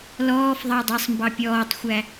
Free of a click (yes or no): yes